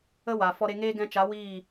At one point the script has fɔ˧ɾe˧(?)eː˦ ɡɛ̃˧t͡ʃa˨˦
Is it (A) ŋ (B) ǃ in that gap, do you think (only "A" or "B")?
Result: A